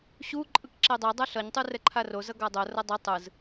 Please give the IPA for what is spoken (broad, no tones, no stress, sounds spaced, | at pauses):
ɕ u ǃʼ ɯ k ǁ e dˤ ɛ dˤ a ɬ ʌ ɲ tˤ u r ɛ ǃʰ a r o z ʌ ɡ a dˤ o r ʌ dˤ i tˤ ɯ z